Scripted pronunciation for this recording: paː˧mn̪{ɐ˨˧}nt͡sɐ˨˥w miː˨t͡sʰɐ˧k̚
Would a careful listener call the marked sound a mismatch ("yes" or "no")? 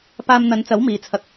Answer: no